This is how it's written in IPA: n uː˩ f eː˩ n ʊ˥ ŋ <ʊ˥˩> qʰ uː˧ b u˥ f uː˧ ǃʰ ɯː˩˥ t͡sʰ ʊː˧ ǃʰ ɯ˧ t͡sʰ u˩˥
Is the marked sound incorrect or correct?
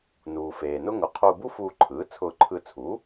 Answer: incorrect